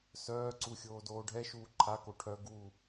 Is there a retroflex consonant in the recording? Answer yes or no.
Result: yes